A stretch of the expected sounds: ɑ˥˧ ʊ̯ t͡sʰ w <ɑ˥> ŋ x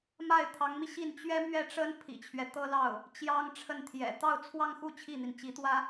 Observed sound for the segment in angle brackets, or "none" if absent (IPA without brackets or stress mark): ɑ˥˧